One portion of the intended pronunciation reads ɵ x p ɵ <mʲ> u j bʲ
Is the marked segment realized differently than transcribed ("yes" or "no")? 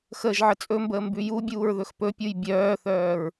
yes